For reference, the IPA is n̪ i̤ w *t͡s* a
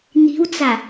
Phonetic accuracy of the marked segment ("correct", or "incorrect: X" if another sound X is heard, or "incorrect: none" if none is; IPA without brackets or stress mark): correct